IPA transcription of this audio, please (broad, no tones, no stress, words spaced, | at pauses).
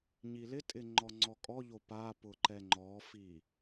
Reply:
ɲilɪtʼɪ ŋ͡ǃɔŋ͡ǀɔkʼɔʎo papʊ ǃɛŋ͡ǃɔfi